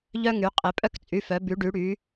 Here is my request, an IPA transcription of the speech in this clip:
ʎ œ˦ ŋ y˩˧ qʼ e˩˧ pʼ œ˦ k t͡sʼ y˩˧˩ f œ˩˧ b y˩˧ ɖ y˩˧ ɽ y˩˧

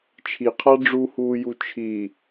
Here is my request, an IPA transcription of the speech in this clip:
t͡ʃʰ i qʰ a ɖ͡ʐ u h uː j u t͡ʃʰ i

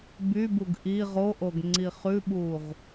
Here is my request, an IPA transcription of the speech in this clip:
b y b u ɡ ʔ i ʁ o ʔ o ɡ ŋ͡ǀ i χ ʉ ɓ u ʁ

